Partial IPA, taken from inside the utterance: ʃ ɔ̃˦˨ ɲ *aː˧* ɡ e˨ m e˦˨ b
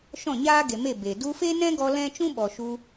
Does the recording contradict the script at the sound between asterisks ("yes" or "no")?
yes